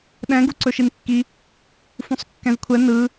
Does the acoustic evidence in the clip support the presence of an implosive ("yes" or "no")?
yes